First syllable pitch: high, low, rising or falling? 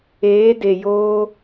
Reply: rising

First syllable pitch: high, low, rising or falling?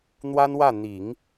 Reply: high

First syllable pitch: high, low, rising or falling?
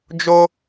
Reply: high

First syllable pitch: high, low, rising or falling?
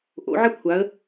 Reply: rising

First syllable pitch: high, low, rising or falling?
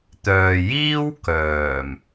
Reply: low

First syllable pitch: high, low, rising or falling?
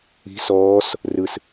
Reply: rising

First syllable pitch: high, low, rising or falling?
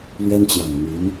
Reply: high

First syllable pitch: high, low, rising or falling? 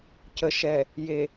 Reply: low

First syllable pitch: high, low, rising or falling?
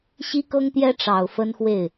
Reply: high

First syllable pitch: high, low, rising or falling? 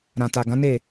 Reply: low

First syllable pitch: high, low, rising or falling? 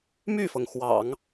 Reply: falling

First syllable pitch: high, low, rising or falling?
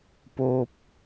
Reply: high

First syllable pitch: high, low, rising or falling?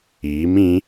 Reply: rising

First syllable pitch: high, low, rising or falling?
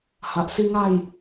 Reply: low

